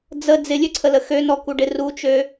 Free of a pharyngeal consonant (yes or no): yes